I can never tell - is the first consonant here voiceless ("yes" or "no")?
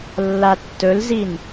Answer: no